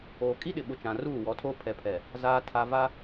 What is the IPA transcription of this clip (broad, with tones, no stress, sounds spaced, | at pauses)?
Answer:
oː˨ kʼ i˦ ɗ ɪ˨ ɓ ʊ˨ t͡ʃ ã˨ r uː˦˨ w ɔ˨˦ tʰ oː˦ pʰ ɛ˨ pʰ ɛ˨ | z aː˨ tʰ a˨ v a˦